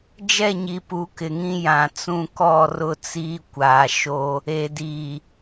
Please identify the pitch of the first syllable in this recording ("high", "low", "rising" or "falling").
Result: falling